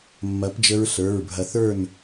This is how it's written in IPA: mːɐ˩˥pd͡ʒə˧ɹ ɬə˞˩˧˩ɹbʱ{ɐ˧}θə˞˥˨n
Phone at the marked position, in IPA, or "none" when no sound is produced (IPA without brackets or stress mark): ɐ˧